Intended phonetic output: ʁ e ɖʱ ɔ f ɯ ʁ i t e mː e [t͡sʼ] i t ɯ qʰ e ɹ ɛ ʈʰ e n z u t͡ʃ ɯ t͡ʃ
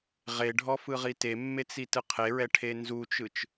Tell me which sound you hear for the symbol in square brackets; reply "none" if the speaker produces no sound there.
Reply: t͡s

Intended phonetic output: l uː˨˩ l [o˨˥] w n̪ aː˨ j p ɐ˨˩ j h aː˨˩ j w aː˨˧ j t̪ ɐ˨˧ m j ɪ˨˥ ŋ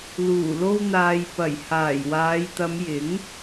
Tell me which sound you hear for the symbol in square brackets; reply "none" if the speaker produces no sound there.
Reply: o˧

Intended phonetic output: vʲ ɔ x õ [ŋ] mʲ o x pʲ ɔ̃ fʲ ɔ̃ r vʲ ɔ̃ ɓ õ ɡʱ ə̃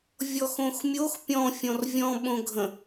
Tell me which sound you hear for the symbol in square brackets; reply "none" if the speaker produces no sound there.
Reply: x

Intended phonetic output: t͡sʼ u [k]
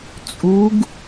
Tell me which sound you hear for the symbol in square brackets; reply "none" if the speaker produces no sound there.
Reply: ɡ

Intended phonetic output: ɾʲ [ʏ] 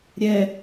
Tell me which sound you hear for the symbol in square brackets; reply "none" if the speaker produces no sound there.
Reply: ɛ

